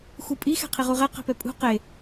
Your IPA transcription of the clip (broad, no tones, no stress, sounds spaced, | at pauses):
x u pʼ i x ɛ̤ qʰ i ʁ u ʁ ɛ q ɛ̤ p ɛ pʼ ṳ q e